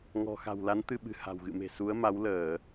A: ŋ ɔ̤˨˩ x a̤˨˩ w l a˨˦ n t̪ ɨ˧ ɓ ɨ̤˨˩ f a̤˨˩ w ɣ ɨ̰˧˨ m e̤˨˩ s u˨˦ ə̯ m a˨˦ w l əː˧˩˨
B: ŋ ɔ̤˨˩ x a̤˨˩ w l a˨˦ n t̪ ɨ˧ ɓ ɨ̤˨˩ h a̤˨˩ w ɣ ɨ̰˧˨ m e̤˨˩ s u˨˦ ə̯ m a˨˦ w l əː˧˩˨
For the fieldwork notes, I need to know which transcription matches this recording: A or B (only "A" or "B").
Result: B